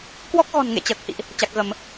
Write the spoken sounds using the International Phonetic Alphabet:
kwɔ˦˥k̚ɣɔ̤˨˩nŋḛ˧˨ t͡ɕəː˨˩k̚hḭ˧˨ʔ | t͡ɕa˨˩k̚ɣə˧˩˨m

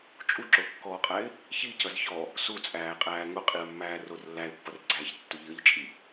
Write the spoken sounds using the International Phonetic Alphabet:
t͡ʃʼuǁokːɔːqʼæɪ̯ | çicʌz çɔ | sut͡sʼæːqʼæː ŋʊqʼiə̯mːæːror lːæɪ̯pːʌrɡ͡ǀæːçtːʊ ʎʌʎt͡ʃʼi

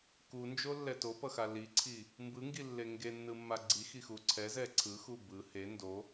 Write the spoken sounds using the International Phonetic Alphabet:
kund͡ʒolːɛ topʌxa liǀʰi | mbɯŋɡilːe ŋɡenːɯmːa ɡ͡ǀixixu ǀʰɛzɛ ǀʰɯxu bɯ he ndo

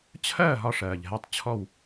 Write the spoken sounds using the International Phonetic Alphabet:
t͡ɕʰɜː˥˨ ɦɒ˥˨ʂɜː˨˩ʎɦɛ˥˨tˤ t͡ɕʰɔ˥˨w

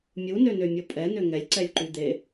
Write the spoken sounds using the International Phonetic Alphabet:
mʲunønømʲo pʼɛnø ŋɛlʲǀɛlʲǃy d̪e

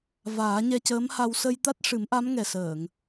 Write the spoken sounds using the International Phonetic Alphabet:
vaː˨˩˦ɲɛ˧cəː˧˥mha˧w sə˧jt̪a˦˥t̚ʂɨ˨˩˦mʔa˧˥m ŋɛ˨˩səː˨˩˨ŋ

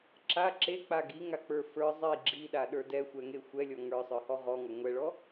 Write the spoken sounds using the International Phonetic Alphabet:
ǁa ǁek͡pa ɡiŋak͡pə˞ fə˞ zˤi ɡ͡ǁiɗaɗə˞ dɛxʷɛŋe xʷɛlʲɔ ŋə˞sˤə˞hɔ ʁɔŋɔ ŋʷɛɭɔ

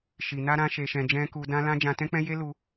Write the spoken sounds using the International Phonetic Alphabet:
ʃi˨ na˧ɾã˧ ʃe˨ʃɛ̃˨d͡ʒɛ̃˧ ku˧dã˦lã˦ d͡ʒã˧tɛ̃˦k͡pɛ̃˦ je˦lu˧

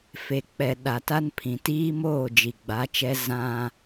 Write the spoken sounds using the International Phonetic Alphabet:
fe˨k͡pɛ˨ ɗa˨ta˦npʰĩ˨ tiː˦moː˦˨ d͡ʒi˨ɡ͡ba˨˦t͡ʃɛ˦ zã˦

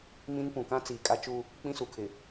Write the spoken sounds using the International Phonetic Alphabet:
mĩ˦n pũ˨ kã˦t͡siː˨kʼa˦t͡ʃu˦ | k͡pĩ˦su˨ kʰɪ˨

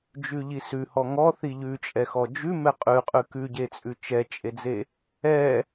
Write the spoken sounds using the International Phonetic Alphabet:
d͡ʒʉʎisʉhɔ ŋɔ θiʎʉt͡ʃʼɛxɔ d͡ʒʉ mɛqʼʉqʼʉ kʉɟet͡sʼʉ t͡ʃɛt͡ʃʼed͡ze | ɛ

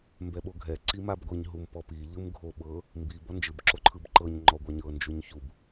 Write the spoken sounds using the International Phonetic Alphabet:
mbɛɓoɡʱɛ ǀimabɡʷiɲ ɦumpɔpi ʎɯmɡʱo ɓɤ | mbi bɔnd͡ʒɯb ǁoǃʰɯbǃɤɲ ŋ͡ǃɔɡʷaɲɤ nd͡ʒuɲçub

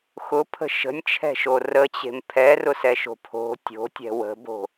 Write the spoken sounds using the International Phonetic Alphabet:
xʊpʰə̤ ʃə̤nʲt͡ʃʰɛ̤ʃo rət͡ɕe̤m pʰɛrʊsɛʃo̤ pʰo̤ tʲo̤tʲɛ̤ wə̤bo̤

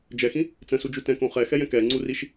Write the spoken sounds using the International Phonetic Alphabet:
d͡ʒɛxĩ | t͡sə̃sud͡ʒu tɛ̃kõ χɛxɛjɛ̃ kɛŋ͡ǀuriʃ

